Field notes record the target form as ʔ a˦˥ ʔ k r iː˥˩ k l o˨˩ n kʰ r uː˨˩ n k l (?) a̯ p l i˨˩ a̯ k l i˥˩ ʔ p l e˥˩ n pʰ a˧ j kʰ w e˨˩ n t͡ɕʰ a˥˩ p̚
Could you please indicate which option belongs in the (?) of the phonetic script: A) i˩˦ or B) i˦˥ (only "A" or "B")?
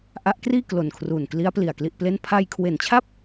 B